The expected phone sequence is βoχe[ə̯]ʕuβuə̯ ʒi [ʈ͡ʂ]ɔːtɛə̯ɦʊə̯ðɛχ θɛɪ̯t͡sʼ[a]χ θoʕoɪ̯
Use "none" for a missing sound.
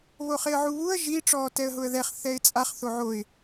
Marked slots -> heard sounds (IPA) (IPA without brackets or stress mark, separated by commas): ə̯, ʈ͡ʂ, a